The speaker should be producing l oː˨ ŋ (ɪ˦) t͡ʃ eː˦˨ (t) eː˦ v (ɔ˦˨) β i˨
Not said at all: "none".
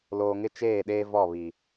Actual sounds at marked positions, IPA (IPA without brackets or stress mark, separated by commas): ɪ˦, ɗ, ɔ˦˨